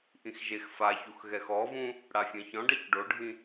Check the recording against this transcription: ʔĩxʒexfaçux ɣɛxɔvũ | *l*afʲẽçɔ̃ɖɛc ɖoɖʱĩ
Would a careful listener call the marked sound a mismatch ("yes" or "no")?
yes